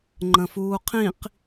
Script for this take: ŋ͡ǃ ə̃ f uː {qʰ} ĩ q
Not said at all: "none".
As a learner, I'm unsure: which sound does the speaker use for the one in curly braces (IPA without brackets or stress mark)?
qʰ